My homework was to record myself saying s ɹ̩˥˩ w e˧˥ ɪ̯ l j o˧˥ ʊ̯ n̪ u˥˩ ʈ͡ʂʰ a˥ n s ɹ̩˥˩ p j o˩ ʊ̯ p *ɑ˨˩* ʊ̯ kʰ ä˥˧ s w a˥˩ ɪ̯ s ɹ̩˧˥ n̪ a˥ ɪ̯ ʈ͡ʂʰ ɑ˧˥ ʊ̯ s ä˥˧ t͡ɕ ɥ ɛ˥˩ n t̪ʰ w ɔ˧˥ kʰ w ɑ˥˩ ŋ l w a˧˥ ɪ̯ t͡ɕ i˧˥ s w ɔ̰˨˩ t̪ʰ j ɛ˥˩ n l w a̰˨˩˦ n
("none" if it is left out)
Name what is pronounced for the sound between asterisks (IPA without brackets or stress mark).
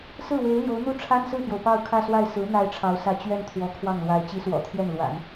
ɑ˥˧